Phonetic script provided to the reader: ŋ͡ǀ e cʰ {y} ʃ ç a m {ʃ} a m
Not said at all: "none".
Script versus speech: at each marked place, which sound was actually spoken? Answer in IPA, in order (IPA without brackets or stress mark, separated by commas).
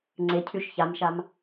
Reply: y, ʃ